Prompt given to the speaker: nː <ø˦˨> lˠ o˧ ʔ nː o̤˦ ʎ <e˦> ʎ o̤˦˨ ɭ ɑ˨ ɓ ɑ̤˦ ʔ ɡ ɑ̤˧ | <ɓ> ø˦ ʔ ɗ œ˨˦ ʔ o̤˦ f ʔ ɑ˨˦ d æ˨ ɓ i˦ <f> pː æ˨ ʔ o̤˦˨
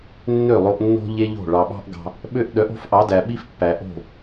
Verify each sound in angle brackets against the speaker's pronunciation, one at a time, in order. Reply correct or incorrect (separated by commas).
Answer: correct, correct, correct, correct